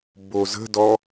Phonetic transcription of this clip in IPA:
bozə̤dɔ

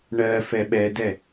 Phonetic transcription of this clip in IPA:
ɳɜfɛ ɓɛdɛ

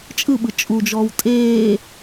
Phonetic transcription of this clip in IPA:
t͡ʃʼɯɓɯ t͡ʃʼud͡ʒɔːw tʼeː

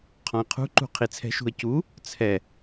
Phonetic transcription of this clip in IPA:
qʰɔ̃ə̯qʰṳǃṳ qʰit͡sʰɛ̤ʃṳə̯ cu | t͡sʰɛ

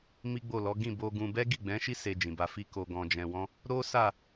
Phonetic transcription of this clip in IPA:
mi˦ɡ͡bo˦˨lɔ˨˦ ɡĩ˦˨bo˧ɡũ˧ bɛ˦ɡi˦˨ɡ͡bɛ̃˨˦ʃi˦ se˧d͡ʒĩ˨ba˧fi˦ ko˧ɡɔ̃˧d͡ʒɛ̃˧wɔ̃˦ | ɾo˦sa˦˨

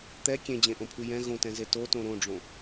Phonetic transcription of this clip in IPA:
t̪ɛ kʲẽd͡ʑẽʔõpʰʉ jɛ̃ ɣõtɛ̃ze totõ ɾõɖ͡ʐõ

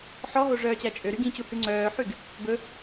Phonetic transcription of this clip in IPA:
ħɔɦo ʐœːt͡ɕæt͡ʃʼøɾy ɡĩt͡ɕuhʉ ŋ͡ǀœːħyɡ | bɵ

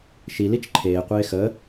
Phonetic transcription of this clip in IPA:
ʃi lit͡ʃǃʰeː qʷeːxə

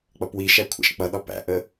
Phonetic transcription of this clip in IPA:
k͡pʌpwiʃæ kʷʰæ̰ʃk͡pʌɗɒ pæ̰ʔə

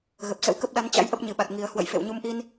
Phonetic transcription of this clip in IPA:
ɣə˨˩p̚sə̰˧˥wkə˦˥p̚ ɗa˨˦n t͡ɕa̰˧˥jʔə˦˥p̚ ɲɨ˨˩ɓa˨˩t̚ŋi˨˩ə̯ hwə̰˧˨jfḛ˧˨w ɲu˨˦mʔi˧n

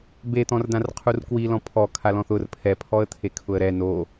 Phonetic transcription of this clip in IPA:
bet̪ɔ̃rdãrqʰur kwilɔ̃ pʰɔ kʰalɔ̃θʊr pʰɛpʰɔə̯t̪ʰe kʰʊə̯ɾɛ no

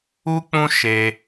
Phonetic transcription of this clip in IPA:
u˦k͡pũ˦ ʃe˧

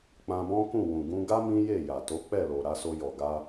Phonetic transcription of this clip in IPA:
k͡pã˧bɔ̃˦kũ˦˨ wũ˨ɡũ˧ɡa˦ mĩ˦je˦˨ja˨ to˨˦k͡pɛ˦˨lo˨ ɾa˨˦so˧jɔ˨ ɡa˧

